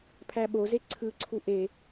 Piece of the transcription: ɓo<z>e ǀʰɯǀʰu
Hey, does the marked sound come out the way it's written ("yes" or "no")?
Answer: yes